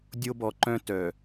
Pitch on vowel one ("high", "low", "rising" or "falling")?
high